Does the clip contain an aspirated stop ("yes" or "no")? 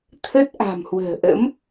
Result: yes